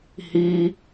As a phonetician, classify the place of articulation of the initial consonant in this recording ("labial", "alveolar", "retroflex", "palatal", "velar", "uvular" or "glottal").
glottal